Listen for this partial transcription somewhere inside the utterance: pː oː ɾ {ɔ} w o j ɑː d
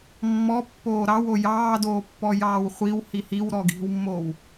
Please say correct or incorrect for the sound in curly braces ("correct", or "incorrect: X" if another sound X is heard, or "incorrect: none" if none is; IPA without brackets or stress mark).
incorrect: ɑ